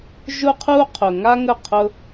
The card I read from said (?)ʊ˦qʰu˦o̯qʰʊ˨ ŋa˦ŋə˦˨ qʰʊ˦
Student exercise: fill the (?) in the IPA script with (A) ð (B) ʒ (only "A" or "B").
B